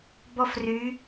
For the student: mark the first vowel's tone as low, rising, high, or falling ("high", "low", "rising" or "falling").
high